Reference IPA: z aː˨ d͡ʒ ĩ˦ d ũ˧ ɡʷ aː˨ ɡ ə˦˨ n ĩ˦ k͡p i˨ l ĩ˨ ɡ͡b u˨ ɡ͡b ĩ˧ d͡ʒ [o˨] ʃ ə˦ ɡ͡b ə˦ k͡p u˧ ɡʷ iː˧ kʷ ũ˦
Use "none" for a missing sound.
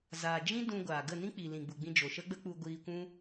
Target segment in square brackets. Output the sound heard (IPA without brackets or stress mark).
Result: o˨